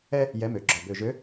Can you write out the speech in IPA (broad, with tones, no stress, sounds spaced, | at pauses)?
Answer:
ɛ˦ | j ɛ˨˥ m ø˩˧ ɡ͡ǁ ɔ˨˩ b ø˨˩ ʒ ø˨˥